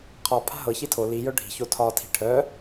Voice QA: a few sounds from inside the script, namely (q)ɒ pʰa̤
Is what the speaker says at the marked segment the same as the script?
no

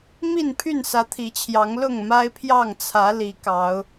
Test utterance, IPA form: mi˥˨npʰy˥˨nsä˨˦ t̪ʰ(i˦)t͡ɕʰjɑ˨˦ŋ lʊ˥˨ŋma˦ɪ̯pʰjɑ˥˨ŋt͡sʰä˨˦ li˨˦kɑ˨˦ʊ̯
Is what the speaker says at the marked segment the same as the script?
no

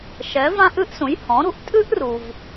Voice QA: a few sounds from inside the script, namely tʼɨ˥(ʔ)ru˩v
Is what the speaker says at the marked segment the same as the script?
yes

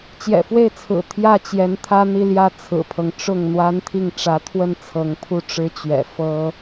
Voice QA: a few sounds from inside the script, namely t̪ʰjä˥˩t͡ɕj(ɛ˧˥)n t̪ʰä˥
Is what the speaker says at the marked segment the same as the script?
yes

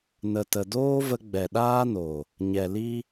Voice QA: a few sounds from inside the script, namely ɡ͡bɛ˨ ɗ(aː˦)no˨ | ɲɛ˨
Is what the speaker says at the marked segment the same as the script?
yes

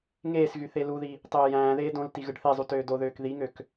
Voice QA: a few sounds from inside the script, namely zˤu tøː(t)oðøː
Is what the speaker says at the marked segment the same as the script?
no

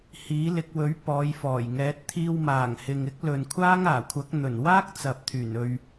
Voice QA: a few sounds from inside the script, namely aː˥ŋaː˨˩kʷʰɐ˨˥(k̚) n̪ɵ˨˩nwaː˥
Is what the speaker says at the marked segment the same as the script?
yes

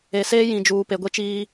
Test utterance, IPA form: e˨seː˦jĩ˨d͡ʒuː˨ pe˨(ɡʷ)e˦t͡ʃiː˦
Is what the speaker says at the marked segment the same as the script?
yes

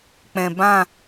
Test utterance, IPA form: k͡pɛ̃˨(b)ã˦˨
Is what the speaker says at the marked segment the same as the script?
yes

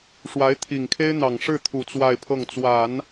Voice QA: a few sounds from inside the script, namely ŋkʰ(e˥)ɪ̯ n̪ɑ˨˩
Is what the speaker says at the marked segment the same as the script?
yes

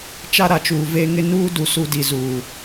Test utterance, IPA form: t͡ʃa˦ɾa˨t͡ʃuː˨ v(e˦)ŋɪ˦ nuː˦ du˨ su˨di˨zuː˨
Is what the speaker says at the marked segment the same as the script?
yes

